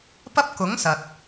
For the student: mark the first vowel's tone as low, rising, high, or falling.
high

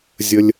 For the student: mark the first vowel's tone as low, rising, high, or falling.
high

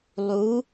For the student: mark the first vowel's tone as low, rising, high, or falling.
rising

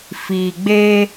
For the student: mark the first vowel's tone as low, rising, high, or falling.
low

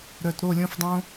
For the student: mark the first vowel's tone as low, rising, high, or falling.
low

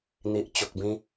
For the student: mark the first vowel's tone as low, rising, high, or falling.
low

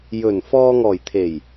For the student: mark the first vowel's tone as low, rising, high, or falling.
low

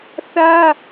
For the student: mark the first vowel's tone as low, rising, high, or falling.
high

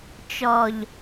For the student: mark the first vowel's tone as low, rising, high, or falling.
low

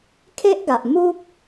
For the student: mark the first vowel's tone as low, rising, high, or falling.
high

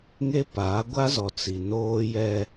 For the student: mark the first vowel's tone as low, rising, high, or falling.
high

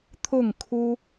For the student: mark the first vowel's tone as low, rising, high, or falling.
falling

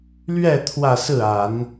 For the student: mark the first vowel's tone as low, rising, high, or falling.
falling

